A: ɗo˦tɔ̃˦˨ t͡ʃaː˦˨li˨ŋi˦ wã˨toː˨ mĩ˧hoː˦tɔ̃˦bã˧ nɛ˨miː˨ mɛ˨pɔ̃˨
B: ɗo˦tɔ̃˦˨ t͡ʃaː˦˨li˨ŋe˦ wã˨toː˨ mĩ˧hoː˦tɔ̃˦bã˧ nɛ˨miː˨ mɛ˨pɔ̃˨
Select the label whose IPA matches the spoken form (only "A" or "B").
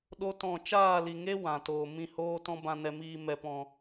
B